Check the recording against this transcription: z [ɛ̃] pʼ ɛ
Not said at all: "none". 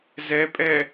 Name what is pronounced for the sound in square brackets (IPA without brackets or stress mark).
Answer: ɛ